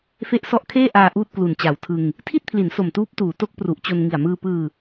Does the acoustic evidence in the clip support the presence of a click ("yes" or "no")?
no